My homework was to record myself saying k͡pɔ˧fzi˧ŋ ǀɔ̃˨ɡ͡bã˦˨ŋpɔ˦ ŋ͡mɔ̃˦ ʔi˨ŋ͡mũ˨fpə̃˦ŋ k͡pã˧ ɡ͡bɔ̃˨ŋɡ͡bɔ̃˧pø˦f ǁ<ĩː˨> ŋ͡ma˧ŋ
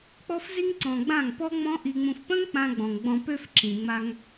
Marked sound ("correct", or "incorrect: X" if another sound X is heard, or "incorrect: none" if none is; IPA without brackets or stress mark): incorrect: ĩ˨